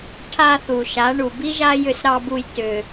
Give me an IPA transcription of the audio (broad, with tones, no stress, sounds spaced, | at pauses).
ʈʰ a˧ θ u˨ ʃ a˨˦ ɳ u˨ b i˦ ʒ a˦ j ʏ˧ s ɾ ɑ˧ b u˧ j t ʏ˧